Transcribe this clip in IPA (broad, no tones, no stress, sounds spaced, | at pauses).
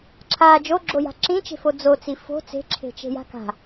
ǁʰ a d͡ʒ o ɡ͡ǁ o j a̤ ǁ ĩ t͡ʃ e̤ f o d͡z o t͡s i f o̤ t͡s e̤ ǁʰ e̤ t͡ʃ e̤ j a̤ k a̤